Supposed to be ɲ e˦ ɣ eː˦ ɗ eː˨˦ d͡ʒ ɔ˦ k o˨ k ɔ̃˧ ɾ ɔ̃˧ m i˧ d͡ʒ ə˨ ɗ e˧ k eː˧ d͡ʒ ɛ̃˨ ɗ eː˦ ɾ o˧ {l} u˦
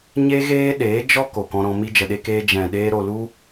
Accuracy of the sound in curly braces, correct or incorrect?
correct